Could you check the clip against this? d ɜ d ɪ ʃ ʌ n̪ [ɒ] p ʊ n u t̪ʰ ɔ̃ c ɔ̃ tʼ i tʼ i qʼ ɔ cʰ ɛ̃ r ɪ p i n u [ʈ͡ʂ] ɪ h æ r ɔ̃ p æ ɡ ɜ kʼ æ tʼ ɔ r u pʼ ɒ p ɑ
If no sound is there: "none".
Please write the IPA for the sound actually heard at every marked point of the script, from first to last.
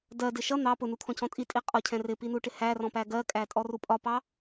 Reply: ɑ, ʈ

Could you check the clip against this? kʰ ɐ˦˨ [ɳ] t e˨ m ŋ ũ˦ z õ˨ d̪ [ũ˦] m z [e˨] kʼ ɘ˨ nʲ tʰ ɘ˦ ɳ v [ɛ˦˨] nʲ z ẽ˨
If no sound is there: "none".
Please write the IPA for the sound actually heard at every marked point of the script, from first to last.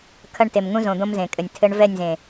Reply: ɳ, õ˦, ẽ˨, ɛ˦˨

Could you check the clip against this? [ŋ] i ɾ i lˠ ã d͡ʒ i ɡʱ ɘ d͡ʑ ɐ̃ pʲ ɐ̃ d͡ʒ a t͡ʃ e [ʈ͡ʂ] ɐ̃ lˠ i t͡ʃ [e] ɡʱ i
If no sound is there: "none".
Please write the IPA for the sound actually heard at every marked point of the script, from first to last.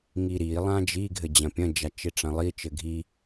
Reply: ŋ, ʈ͡ʂ, ɘ

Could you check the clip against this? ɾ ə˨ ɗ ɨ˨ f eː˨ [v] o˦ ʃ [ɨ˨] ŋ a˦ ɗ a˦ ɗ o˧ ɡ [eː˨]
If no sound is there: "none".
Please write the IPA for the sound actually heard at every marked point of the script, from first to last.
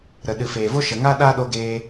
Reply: v, ə˨, eː˧

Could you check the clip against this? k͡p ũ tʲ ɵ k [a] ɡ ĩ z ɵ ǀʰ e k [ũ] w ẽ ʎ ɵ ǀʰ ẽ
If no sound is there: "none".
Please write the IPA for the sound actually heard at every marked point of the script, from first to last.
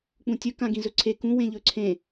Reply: ã, ũ

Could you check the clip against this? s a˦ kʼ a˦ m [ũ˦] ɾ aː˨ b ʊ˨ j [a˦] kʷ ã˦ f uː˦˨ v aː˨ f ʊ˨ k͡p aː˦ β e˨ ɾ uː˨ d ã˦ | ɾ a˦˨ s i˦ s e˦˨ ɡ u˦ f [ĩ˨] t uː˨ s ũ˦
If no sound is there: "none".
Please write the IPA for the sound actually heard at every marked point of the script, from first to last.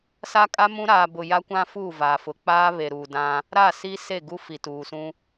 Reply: ũ˦, a˦, i˨

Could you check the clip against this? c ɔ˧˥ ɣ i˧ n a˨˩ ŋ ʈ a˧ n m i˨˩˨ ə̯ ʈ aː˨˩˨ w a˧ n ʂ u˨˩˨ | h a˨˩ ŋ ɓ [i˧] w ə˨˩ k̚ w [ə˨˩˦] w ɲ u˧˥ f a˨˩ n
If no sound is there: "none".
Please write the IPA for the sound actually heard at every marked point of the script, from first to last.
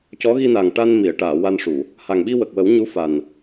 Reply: i˧, ə˨˩˦

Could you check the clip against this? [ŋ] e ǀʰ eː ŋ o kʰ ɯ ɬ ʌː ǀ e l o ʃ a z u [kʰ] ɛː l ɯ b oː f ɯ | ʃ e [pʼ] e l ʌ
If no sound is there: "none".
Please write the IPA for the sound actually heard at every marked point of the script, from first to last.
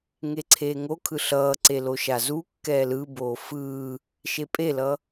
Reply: ŋ, kː, pʼ

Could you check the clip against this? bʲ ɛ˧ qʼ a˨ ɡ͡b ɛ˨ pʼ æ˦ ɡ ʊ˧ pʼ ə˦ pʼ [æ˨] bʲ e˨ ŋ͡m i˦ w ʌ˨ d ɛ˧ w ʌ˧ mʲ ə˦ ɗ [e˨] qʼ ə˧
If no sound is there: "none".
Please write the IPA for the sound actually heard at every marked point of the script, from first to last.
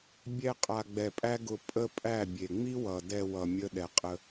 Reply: æ˦˨, ɛ˨

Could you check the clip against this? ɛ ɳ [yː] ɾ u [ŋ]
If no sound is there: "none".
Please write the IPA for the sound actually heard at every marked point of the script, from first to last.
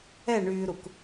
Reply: yː, k

